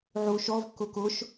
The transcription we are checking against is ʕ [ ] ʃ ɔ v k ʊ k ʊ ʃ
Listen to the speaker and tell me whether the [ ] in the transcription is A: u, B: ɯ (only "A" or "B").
A